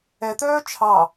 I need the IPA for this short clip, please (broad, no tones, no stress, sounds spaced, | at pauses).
ɛ t̪ œː t͡ʃʰ ɑ